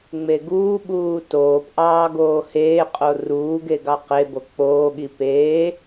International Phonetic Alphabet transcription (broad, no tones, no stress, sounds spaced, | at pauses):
ŋ͡m e ɡ uː ɓ uː t oː p ʔ ɑː ɡ oː h eː qʼ o r uː ɡ e ɡ ɑ q e b o k͡p oː ɠ i p eː